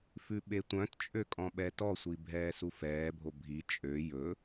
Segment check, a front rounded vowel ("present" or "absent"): present